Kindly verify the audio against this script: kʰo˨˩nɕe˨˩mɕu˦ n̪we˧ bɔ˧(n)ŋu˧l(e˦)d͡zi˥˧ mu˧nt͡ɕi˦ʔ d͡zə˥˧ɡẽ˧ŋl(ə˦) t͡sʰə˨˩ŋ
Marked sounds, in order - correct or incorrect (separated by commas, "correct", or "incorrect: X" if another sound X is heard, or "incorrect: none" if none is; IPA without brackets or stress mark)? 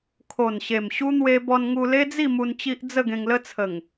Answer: correct, correct, correct